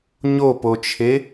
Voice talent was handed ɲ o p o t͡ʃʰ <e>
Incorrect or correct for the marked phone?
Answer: correct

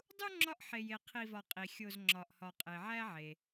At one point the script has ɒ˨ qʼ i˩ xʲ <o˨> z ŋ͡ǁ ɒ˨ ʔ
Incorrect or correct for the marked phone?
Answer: correct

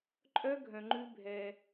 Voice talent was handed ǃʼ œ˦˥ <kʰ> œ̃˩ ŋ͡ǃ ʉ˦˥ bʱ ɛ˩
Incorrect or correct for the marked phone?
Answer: incorrect: ɡʱ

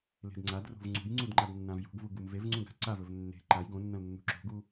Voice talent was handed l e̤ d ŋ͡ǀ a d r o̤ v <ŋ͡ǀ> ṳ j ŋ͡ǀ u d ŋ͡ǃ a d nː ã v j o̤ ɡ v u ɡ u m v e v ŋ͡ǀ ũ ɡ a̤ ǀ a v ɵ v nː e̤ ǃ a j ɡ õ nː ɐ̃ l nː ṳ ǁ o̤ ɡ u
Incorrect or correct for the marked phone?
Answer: correct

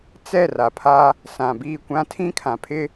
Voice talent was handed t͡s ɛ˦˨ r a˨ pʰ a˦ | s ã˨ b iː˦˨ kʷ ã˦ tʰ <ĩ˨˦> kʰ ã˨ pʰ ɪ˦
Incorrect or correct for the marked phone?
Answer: incorrect: ĩ˦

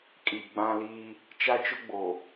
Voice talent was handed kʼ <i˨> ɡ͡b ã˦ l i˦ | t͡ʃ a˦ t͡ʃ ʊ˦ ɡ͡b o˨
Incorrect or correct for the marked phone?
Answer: correct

